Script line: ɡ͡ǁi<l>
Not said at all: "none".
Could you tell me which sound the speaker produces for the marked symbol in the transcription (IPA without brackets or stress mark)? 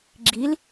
l